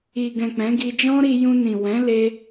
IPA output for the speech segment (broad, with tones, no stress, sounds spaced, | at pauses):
i˨ ɡ ɛ̃˨ k͡p ɛ̃˨˦ ɡ i˧ d͡ʒ ɔ̃˦ ɾ i˧ j ũ˧ n ĩ˨ w ɛ̃˨˦ l e˧